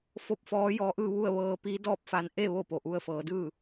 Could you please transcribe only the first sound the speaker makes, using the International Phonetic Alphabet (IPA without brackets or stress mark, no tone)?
f